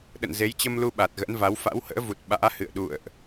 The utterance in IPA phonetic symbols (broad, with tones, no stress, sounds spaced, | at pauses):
ɗ ə̰˧˨ n z e˨˦ j t͡ɕ ə˧ m l u˧ ɓ a˨˩ t̚ ɣ ə̰˧˥ n v a˨˦ w f a̰˧˥ w h ə̰ː˧˥ v u˨˩ t̚ ɓ a̰ː˧˥ h ɨ̰˧˨ ə̯ ɗ ṵ˧˨ ə̯ ʔ